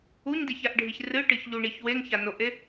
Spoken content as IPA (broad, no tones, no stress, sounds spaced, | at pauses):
u ɲ d e ç a ʔ ɖʱ i ç r ɨ ʈ ɨ ç ʎ u ɳ i ç w e ŋ ç a n o ʔ e